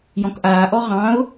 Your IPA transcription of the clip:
j ɔ̃ k ʔ aː ʔ ɔ ʁ ɑ̃ ʊ̯

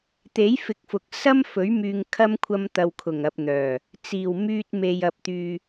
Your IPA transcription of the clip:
t̪ e˨˥ j f ɪ˨˥ k̚ f ʊ˨ k̚ s ɐ˥ m f ɵ˨˥ ɥ m yː˧ ŋ kʰ ɐ˥ m kʷʰ ɐ˥ m t̪ ɐ˧ w kʰ ʊ˨˩ ŋ ɐ˨ p̚ n̪ œː˨˩ | t͡s iː˨˩ w m yː˧ t̚ m e˨ j ɐ˨ p̚ t̪ yː˨

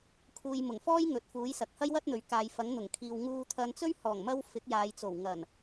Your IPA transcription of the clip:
kʰ uː˨ j m ʊ˨˩ ŋ f ɔː˥ j ŋ ɵ˨˥ t̚ f uː˨˥ j s ɐ˨ k̚ h ɐ˥ j w ɐ˥ t̚ n̪ ɵ˨˧ ɥ k aː˨˧ j f ɐ˨˥ ŋ n̪ ʊ˨˩ ŋ kʰ iː˨ w ŋ uː˧ t̪ʰ ɐ˧ n t͡s ɵ˥ ɥ h ɔː˨˩ ŋ m ɐ˧ w f ɪ˨˥ k̚ j aː˨˧ j t͡s o˨˩ w ŋ ɐ˨˩ n

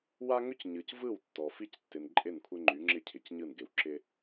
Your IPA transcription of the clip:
w a˦ ŋ ʏ˦ c ɲ ɯ˨ c v ɯ˦˨ w tː ɔ˨ f i˦ c tː ɪ˨ n ǃʼ ɪ˦˨ n kʷʰ ɪ˦ ŋ͡ǃ y˨˦ ŋ͡ǁ ɪ˦ cʰ ɪ˨ c ɲ ɯ˦˨ n ɡ ɪ˨ w ǁ ɪ˦

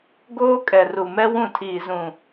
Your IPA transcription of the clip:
ɡ oː˦ kʼ ɛ˨ r u˨ m ɛ˦ w ũ˦˨ tʰ iː˨ z ũ˨

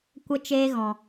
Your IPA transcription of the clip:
kʷ ə˦ t͡ʃ eː˦ ɣ ɔ̃˨

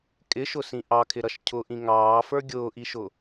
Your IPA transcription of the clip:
kʼ ɪ ʃ ʊ s ĩ ʔ ɑ kʰ ɪ ɾ ʌ ʃ cʰ ʊ ʔ ĩ ŋ ɑː f ə˞ ɡʲ ʊː ʔ i ʃ ʊ

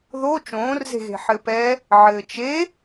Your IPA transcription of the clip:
ð o t͡ʃ õː r z e̤ ɣ e̤ ħ ɘ p ɛ | ʕ ɘː t͡ʃ e

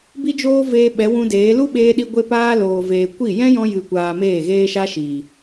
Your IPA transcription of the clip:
b i˧ d͡ʒ oː˧ v eː˧ ɓ ɛ˨˦ w ũ˧ d eː˨˦ l u˦ ɓ eː˧ ɗ i˧ ɡʷ e˧ p aː˧ l oː˨ v eː˨ kʷ i˦˨ j ɛ̃˦ j ɔ̃˧ j ɨ˨ kʷ aː˨ m eː˦˨ ɣ eː˦ ʃ a˦ ʃ iː˨

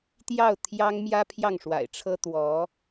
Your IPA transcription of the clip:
t̪ j ɑ˥˩ ʊ̯ t̪ʰ j ɑ˥ ŋ m j ä˥ pʰ j ɑ˥˩ ŋ ʂ w a̰˨˩ ɪ̯ ʈ͡ʂʰ ɤ˥ t̪ w ɔ˧˥

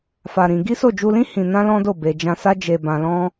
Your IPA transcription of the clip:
f a˧ ɾ ĩ˧ ɡ i˦ s o˦˨ d͡ʒ u˧ l ĩ˦ h ĩ˧ n ã˦ l ɔ̃˦ d o˦˨ b e˨ d͡ʒ ã˧ s a˦ d͡ʒ e˧ b ã˧ l ɔ̃˦

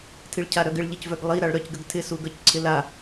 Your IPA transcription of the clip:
tʰ i ɭ cʰ a ɾ œ ɡ ɪ ɭ ʎ ɪ c v œ ɡ lˠ i ɾ a ɭ ɾ œ c ɡ ə ɡ tʰ ɪ s u ɡ œ c ǀʰ ɪ l a

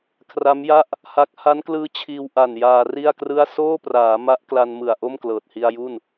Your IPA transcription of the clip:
kʰ r a˦˥ m j a˥˩ ʔ | h a˦˥ k̚ h a˦˥ n k l ɯː˦˥ t͡ɕʰ iː˧ w ʔ a˨˩ n j aː˧ r i˥˩ a̯ k r ɯ˥˩ a̯ s oː˥˩ p r aː˩˦ m a˦˥ ʔ k l a˧ n m ɯ˨˩ a̯ ʔ o˥˩ m k l ɤː˨˩ t̚ h i˧ a̯ j u˥˩ n

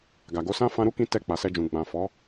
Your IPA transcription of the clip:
ɡ a˨ ɡ o˨˦ s ã˦ f ã˧ ɾ u˦ k ĩ˧ t ɛ˧ k͡p a˨ s ɛ˧ d͡ʒ ũ˨ ɡ͡b ã˨ f ɔ˨˦

